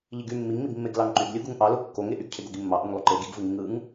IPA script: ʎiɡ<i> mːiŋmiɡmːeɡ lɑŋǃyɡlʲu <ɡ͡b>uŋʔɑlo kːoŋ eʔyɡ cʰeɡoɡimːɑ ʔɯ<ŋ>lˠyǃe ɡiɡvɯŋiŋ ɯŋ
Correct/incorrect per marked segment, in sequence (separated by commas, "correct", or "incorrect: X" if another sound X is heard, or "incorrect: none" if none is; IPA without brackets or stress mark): incorrect: y, incorrect: ɡ, correct